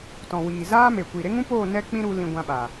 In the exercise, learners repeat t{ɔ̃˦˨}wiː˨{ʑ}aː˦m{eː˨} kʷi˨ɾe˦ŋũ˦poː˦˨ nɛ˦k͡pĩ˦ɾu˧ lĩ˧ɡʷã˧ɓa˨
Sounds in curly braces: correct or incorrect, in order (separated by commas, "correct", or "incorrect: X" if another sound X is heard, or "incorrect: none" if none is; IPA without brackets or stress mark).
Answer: incorrect: ɔ̃˨, incorrect: z, incorrect: e˨